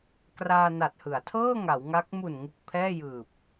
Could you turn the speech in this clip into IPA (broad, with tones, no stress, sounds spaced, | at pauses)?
k r aː˧ n a˨˩ t̚ h ɯ˩˦ a̯ tʰ ɤː˥˩ ŋ a˩˦ w ŋ a˦˥ k̚ m u˨˩ n ŋ u˨˩ k̚ pʰ ɛː˥˩ j ɯː˨˩ p̚